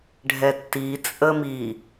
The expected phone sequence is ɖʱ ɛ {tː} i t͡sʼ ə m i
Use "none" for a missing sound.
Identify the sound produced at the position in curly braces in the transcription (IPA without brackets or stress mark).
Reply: tː